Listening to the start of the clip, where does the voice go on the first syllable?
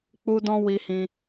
high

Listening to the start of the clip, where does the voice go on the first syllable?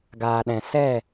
low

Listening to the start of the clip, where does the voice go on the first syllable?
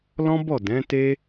high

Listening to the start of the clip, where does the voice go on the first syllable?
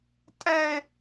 high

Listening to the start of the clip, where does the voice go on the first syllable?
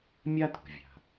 high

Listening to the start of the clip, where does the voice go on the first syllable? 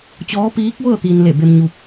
rising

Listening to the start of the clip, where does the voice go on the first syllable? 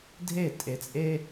falling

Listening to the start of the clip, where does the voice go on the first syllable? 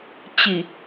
low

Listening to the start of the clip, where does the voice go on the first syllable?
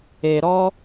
low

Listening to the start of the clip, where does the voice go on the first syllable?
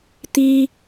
high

